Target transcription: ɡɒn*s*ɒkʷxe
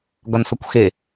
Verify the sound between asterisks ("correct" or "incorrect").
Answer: correct